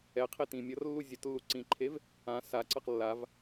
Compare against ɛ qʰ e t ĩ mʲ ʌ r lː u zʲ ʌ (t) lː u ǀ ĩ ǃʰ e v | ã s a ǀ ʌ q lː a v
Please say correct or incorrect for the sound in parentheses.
correct